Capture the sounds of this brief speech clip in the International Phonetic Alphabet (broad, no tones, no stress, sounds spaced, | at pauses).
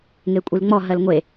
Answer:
ŋ e kʷʼ i l ŋ͡m ɔ ɦ ɜ l ŋʷ e